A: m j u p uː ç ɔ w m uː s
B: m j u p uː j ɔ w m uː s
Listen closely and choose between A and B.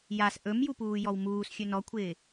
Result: B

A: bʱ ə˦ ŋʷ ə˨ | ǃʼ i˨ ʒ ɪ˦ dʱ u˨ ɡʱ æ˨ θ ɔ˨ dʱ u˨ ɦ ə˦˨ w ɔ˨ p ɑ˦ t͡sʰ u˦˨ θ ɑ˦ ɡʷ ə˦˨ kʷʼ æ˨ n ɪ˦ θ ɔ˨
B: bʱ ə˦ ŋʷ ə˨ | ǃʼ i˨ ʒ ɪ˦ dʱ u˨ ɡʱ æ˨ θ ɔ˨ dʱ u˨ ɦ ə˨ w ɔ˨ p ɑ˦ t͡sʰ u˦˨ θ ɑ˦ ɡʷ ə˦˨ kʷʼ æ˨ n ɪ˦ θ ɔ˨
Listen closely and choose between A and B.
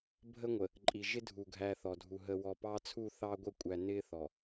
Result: B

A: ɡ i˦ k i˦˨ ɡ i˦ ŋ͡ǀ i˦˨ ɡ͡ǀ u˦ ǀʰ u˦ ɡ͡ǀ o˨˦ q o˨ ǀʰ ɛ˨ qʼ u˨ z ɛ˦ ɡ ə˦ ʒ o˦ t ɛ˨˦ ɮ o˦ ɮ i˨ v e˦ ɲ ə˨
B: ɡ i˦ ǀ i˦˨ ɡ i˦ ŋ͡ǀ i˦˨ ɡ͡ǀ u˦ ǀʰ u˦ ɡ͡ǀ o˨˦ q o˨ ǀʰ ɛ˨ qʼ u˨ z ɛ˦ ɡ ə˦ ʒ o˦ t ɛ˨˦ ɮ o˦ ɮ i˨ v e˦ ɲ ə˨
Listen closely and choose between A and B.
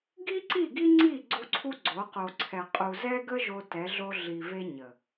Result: B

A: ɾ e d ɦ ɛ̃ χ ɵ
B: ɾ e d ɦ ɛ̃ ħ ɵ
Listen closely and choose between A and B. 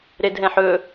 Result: B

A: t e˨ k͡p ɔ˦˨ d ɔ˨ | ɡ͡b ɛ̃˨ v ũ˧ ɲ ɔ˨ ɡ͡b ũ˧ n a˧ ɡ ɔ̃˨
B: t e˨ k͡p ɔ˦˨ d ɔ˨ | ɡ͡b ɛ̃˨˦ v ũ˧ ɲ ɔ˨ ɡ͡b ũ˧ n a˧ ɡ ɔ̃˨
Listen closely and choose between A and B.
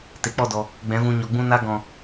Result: B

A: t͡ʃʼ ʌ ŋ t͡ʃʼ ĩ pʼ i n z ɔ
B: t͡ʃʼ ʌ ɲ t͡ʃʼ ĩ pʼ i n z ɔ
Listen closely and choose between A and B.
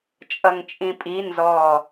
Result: A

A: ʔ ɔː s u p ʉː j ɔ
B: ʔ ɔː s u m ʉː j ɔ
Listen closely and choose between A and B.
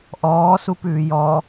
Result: A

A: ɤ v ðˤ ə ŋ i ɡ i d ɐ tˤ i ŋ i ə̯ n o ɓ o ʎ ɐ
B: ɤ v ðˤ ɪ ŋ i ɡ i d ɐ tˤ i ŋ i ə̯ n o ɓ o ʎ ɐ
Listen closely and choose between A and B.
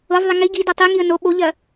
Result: B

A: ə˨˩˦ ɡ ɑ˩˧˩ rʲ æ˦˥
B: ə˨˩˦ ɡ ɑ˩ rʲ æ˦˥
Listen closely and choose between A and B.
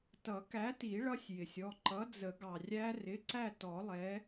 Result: B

